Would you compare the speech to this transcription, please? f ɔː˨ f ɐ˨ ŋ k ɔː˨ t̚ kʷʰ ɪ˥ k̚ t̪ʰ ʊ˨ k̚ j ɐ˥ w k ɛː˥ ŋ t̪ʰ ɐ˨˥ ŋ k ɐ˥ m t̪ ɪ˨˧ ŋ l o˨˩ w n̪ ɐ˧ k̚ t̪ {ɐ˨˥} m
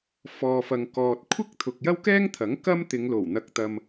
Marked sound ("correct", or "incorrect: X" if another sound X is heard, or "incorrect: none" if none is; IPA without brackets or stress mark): incorrect: ɐ˧